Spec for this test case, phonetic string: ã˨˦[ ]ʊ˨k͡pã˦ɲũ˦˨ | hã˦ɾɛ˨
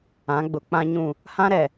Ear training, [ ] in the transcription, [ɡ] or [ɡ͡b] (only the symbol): ɡ͡b